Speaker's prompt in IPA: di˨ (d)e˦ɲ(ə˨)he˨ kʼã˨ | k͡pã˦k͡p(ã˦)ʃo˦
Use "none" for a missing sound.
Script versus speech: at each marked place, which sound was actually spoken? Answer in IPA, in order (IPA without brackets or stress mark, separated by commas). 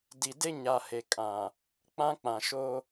d, a˨, ã˨